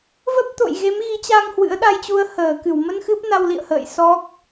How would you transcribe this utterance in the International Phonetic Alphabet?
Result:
v ə˦˥ p̚ t̪ o̰˧˨ j ɣ e˨˦ m ɣ i˨˦ t͡ɕ a˧ ŋ h w ɨ̰˧˥ ə̯ ɗ a˧ j t͡ɕ u˧ ə̯ h əː˧˩ k ɨ˧˩ w m ə˧ n x ɨ˦˥ p̚ n a˧ w l ḭ˧˨ ə̯ h ə̰ː˧˨ j s ɔ˦˥ k̚

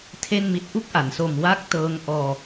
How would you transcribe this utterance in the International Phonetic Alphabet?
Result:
tʰ e˥˩ n m i˦˥ t̚ ʔ u˥˩ k̚ ʔ a˩˦ n s o˨˩ m w a˦˥ k̚ t ɤː˦˥ ŋ ʔ ɔː˧

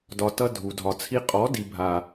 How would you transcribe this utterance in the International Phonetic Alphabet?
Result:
d ɒ˨ t ʌ˧ dʱ u˨ dʱ ɒ˨ t͡sʰ i˧ qʼ ɔ˨˦ d i˨ bʱ a˨

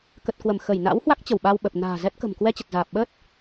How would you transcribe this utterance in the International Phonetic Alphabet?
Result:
k ə˨˩ t̚ k w ə˧˩ m x ə˧˩ j n a̰˧˥ w h w a˦˥ k̚ t͡ɕ ə˧˩ w ɓ a˧ w ɓ ə˨˩ p̚ n a̤ː˨˩ z ɛ˦˥ t̚ k ə̤˨˩ m k w ɛ˧ t͡ɕ ə˨˩ t̚ z aː˨˩ p̚ ɓ ə˦˥ t̚

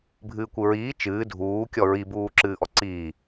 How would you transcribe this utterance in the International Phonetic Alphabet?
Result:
bʱ ɨː kʷ ɨ ɹ iː t͡ʃ ɨː dʱ uː kʲ ɔ ɹ i b uː ǁ ɨː ʔ ɔ ǀ iː

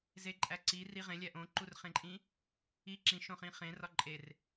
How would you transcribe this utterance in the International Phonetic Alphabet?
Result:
z e ǃʼ æ ǀ i r i ʁ ẽ lʲ æ ʔ õ ǃ u r χ ẽ ǃʼ ĩ | i ǁ ĩ ʃ õ χ ĩ χ ẽ r ɒ ǃʼ e r

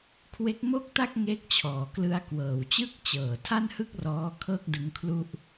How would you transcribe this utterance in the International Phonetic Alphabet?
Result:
kʰ w e˦˥ k̚ m o˥˩ k̚ t a˥˩ k̚ ŋ e˦˥ k̚ t͡ɕʰ ɔː˩˦ k l ɯ˧ a̯ k w ɤː˩˦ w t͡ɕ ɯ˥˩ k̚ t͡ɕ ɤː˨˩ tʰ a˥˩ n h ɯ˥˩ k̚ r ɔː˦˥ kʰ ɤː˥˩ k̚ d ɯ˦˥ ŋ kʰ l u˥˩ ʔ

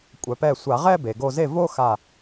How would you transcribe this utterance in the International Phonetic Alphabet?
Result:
kʷʼ œ˩˧ p ɛ˧˩ sʷ a˧˩˧ ʁ ɛ˥˧ b e˩ ɡ o˧˩ z e˥˩ v o˥˧ x a˧˩

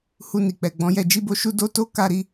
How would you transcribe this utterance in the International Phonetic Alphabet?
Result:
h u˧ n i˨ k͡p ɛ˨ ɡ͡b ɔ̃˨˦ j ɛ˧ d͡ʒ i˦ b o˦ ʃ u˦ d o˦ t o˦ k a˦˨ ɾ i˧

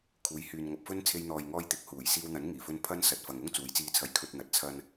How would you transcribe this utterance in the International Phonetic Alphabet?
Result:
kʰ uː˨˧ j h yː˨ n ŋ ɐ˨ p̚ f ɵ˥ n t͡sʰ e˧ j n̪ ɔː˨ j ŋ ɔː˧ j t̪ ɪ˨˥ k̚ h uː˨˩ j s iː˧ w n̪ ɐ˨˥ n ŋ iː˨˩ f ɵ˧ n pʰ ɐ˥ n s ɐ˨˥ t̚ f ɐ˨ ŋ ʊ˥ ŋ t͡s uː˨˧ j t͡s iː˧ t͡sʰ ɐ˨˧ j kʰ ɵ˧ t̚ n̪ ɐ˨ t̚ t͡sʰ ɐ˧ n

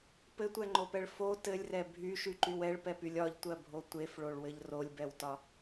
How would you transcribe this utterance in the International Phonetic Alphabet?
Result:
p ɘ tʷ ɛ ŋ͡ǃ o p ɛ ɭ f o t ɘ lʲ r ɛ bʱ y ʃ y ǃ y w ɛ ɭ p ɛ p y lʲ ɒ ʎ tʷ ɜ bʱ o tʷ e f ɭ o ɭ w ɘ ʎ r o lʲ b ɛ w t ɒ

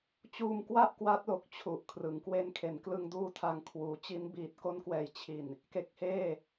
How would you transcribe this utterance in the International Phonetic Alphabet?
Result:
t͡ɕ uː˧ m k w a˥˩ ʔ k w a˦˥ t̚ l o˨˩ k̚ t͡ɕʰ u˨˩ ʔ kʰ r ɯ˩˦ ŋ k w e˧ n kʰ e˩˦ n k l ɯ˧ ŋ d uː˦˥ tʰ a˧ ŋ kʰ w uː˩˦ t͡ɕ i˦˥ n b iː˨˩ t̚ k o˦˥ n k w ɛː˩˦ j t͡ɕʰ i˨˩ n | k e˦˥ k̚ h eː˥˩

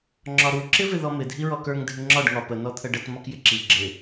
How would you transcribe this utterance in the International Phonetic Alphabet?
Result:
ŋ͡ǁ ɒ ɾ u ǁ ɪ v ɪ ð ɔ m ɪ dʱ i ɹ ɔ k ə˞ ŋ dʱ ɪ ŋ͡ǁ ɒ ɖ ŋ ɒ p ə n ɔ t̪ʰ ə ɖ ə t m ɒ k j ɪ ǁ i ɡ͡ǁ ɪ

